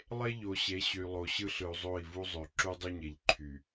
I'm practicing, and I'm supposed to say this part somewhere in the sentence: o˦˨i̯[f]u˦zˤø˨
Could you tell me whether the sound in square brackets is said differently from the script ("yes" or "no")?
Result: yes